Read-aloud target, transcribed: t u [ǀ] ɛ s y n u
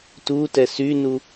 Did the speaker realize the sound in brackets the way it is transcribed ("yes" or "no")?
no